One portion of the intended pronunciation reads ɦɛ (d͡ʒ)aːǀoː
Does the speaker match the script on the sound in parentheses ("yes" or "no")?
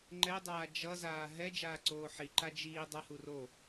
yes